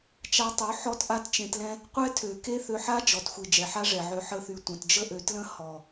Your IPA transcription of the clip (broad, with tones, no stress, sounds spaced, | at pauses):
t͡ʃ a˧ tˤ ø˨˦ ħ ɔ˦ t ʔ a˦ t t͡ʃ ẽ˧ t l ɛ̃˦ | qʷ ɛ˦ tʰ ø˨ k e˦ θ ø˧ ħ a˦ d͡ʒ ɔ˨ t xʷ i˨ d͡ʒ ɛ˨ ħ a˦ ʐ ɛ˨ ʕ ø˧ ħ ə˧ θ y˨ tʷ ə̃˨ t d͡ʒ ə˦ ʔ ø˨˦ t l ə̃˦ h ɔ˨